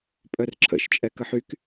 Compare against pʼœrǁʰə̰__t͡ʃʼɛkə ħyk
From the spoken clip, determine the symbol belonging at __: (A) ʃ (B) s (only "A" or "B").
A